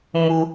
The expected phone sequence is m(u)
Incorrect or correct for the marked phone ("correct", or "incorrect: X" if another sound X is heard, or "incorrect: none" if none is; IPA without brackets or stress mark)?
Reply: correct